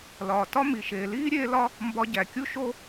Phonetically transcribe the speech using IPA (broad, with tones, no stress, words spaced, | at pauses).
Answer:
lɒː˨tɒ˦ mi˨ ʃeː˨ liː˦ɾʲeː˧ lɒ˦ | mbɒ˧ɟæ˨kʲu˦ʃo˦